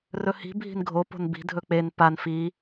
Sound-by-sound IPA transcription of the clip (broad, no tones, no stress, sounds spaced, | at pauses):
r ɵ h i̤ bʱ i̤ n ɡʱ o p o̤ n b i̤ dʱ ɵ k͡p e n p a n f i